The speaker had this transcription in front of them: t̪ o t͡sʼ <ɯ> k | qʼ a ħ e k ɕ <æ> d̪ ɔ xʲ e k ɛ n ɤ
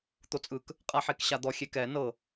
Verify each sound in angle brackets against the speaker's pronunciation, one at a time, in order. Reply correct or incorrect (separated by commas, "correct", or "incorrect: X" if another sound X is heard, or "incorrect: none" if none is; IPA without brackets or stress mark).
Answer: correct, incorrect: a